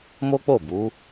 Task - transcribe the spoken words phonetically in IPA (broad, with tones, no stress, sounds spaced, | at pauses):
m o˦ k͡p o˦˨ b u˨˦